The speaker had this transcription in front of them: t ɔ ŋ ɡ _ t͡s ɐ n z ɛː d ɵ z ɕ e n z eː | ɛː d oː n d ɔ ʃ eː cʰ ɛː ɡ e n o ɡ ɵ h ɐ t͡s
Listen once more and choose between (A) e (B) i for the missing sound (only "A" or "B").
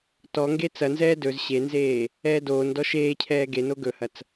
A